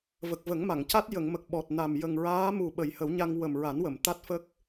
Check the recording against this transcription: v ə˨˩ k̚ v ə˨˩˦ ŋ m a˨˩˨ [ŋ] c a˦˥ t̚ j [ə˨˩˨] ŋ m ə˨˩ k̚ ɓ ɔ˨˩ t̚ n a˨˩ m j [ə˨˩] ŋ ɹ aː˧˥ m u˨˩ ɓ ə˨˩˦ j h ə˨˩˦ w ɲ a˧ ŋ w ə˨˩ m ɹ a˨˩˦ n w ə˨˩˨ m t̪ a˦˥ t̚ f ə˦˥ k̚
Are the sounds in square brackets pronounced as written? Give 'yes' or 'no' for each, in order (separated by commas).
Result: yes, yes, yes